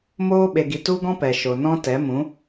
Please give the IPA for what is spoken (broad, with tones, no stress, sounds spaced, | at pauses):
m oː˦ ɓ e˧ ɡ i˧ t u˦ ɡ ɔ̃˦ p ɛ˨ ʃ o˨ n ɔ̃˦ t ɛ˨˦ m ũ˨˦